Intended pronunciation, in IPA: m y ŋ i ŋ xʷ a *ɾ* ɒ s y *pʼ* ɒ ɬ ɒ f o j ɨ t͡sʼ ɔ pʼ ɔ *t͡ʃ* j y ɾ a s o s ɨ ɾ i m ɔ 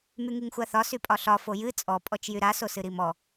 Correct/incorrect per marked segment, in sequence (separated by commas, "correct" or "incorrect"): incorrect, correct, correct